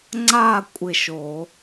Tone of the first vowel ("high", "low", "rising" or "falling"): falling